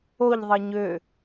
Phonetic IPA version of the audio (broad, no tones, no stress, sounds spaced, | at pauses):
o ʎ ðˤ ɤ ɲ ø